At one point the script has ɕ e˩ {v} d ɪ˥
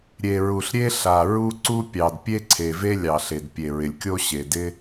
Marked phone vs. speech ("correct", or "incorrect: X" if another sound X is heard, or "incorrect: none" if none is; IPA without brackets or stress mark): incorrect: none